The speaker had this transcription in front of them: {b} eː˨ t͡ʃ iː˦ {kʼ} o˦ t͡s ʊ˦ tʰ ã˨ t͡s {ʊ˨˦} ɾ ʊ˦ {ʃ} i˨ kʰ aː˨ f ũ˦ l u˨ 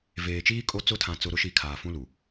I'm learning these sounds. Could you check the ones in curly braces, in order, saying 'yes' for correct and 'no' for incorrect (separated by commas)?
no, yes, no, yes